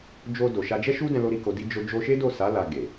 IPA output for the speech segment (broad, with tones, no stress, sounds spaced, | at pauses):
d͡ʒ o˧ d o˨ ʃ a˧ d͡ʒ ɛ˦ ʃ u˦ d ɛ̃˧ l o˦ ɾ i˧ k o˧ d i˦ d͡ʒ o˦ d͡ʒ o˧ ʃ e˦ d o˦˨ s a˨˦ l a˧ ɡ e˨